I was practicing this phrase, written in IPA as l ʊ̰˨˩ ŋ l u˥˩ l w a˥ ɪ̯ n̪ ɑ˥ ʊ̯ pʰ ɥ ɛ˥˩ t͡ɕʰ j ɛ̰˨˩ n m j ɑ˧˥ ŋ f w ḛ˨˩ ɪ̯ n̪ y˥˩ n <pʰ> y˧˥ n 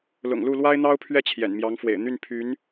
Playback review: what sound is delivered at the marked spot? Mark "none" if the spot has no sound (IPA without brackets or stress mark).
pʰ